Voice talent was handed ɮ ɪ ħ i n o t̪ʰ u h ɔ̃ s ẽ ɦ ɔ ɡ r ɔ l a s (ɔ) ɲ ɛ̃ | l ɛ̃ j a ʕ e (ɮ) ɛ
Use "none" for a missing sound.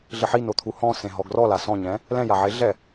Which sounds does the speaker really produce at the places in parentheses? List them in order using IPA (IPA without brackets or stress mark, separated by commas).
ɔ̃, ɮ